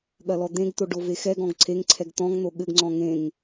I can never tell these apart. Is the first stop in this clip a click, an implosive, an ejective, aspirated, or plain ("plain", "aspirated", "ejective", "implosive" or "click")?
implosive